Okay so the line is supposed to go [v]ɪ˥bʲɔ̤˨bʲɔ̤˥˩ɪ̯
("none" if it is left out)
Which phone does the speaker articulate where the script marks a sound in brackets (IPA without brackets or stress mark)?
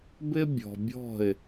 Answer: b